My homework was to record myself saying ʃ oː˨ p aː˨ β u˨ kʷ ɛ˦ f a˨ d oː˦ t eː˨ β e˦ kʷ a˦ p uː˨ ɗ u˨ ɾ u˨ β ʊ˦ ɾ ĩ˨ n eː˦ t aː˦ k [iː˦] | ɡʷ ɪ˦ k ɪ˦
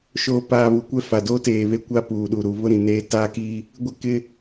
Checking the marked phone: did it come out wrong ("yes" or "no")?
no